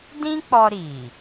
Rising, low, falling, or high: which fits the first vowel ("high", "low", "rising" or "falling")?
high